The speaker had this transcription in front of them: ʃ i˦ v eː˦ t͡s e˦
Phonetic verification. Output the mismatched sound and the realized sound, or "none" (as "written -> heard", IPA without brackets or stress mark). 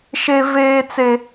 i˦ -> e˦